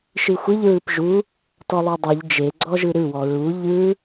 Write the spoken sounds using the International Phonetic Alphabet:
ʃ ɨ xʷ ɨ ʎ ɹ ɯ p ʒ u | t ɔ lˠ u dˤ ɛ ʎ d͡ʒ e ɡ͡ǀ ɔ ʒ ɯ ɾ ɯ w ɔ ɹ u ʎ ɯ

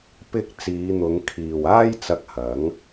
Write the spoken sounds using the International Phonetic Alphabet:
p ɪ˧ k̚ t͡s iː˨˧ n̪ ʊ˨˧ ŋ kʰ iː˨ w aː˥ j t͡s ɐ˧ k̚ h ɐ˨˥ ŋ

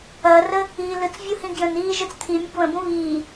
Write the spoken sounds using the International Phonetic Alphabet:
ɐː r ə | iː l ɯ t͡s vʲ u h ĩ ɡ j ə̃ n iː ʒ ɯ t͡s t̪ʰ i mʲ ə ɡ β ə̃ b ũ β iː

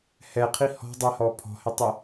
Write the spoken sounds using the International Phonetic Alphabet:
h ɛ qʰ i h ɔ̤ dˤ ɛ h ɔ pʰ ɔ̤ h ɪ tˤ ɪ

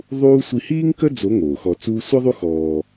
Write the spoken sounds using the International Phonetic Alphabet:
ðˤ uː˥ sʷ i˧ h iː˥ ŋ k ə˥ d͡z o˧˥ ŋ oː˩ x ɔ˧ t͡s uː˥ sʷ ə˥ ðˤ u˥ x ɔː˧

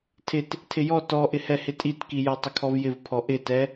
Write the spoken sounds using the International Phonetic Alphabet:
tʰ ɪ t | tʰ ɪ j ɔ t ɔ ʔ ɪ h ɛ h ɪ tʼ i t k i j ɔ tˤ ɪ kʰ ɔ v j ɪ v pʰ ɔ ʔ ɪ t ɛ

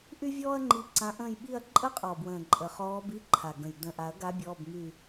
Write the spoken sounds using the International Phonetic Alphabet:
ʔ y˥ vʲ ɔː˥ ɐ̯ ŋ͡ǃ i˧˥ ǀ ã˧˥ ʔ ə̃ː˥˧ j ɓ i˥˧ ɐ̯ ǃʼ ə˥ qʼ ɔ˨˩ b w ə̃ː˨˩ ǃʼ ə˨˩ χ ɔː˧˥ b i˧˥˧ ǃʰ a˨˩ ɡ ə̃˨˩ j d ə̃ː˨˩ ʔ a˨˩˦ ɐ̯ ɡ a˧˥ bʲ ɔ˧˥˧ b m y˥˧

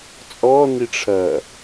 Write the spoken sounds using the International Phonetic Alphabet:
t͡sʼ ɔ n i ʈ͡ʂʰ ɐː

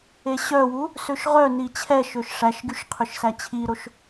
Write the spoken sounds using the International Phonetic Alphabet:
e ɕ œ w u | s ø ʃ ʁ œ n i t͡ɕʰ ɛ ʃ ø ʃ ʂ æ ʃ ɡ y ʃ qʰ ø ʃ s æ t͡ɕʰ i ɾ o ʃ

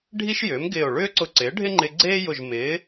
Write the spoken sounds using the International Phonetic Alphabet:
ɖʱ i˥ ʃ j ʏː˩˥ m ɡ ɪː˧˩ o̯ ɭ ʏː˥ ǀ ʊ˧ ǀ ɪː˩˥ ɖʱ ɪ˥ ŋ͡ǃ ɪ˧ ɡ͡ǀ eː˥ j ʊ˧˩ ʒ m ɪː˩˥

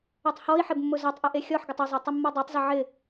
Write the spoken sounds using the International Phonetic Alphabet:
ɛ tˤ h ɔ i̯ ħ ɪ b mː ʊ z ɔ tˤ ʔ e ʔ e xʲ ɔ ħ ɡ ɪ tˤ ɪ zˤ e tˤ ɪ mː ɔ dˤ e tˤ z ɪ ʕ ɪ

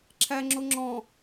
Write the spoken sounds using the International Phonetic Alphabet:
ǁʰ æ ŋ͡ǁ o ŋ͡ǁ ɔ̃

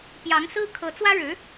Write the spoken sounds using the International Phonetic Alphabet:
p j ɑ˧˥ ŋ s ɹ̩˥ kʰ ɤ˧˥ t͡s w ä˥ ɻ ɻ̩˧˥

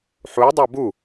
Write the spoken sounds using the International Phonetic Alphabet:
ħ u dˤ a b u

